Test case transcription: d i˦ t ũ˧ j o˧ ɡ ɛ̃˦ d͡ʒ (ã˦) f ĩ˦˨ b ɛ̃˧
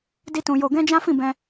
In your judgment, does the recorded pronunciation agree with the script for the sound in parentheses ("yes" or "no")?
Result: yes